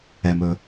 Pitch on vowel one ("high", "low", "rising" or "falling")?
low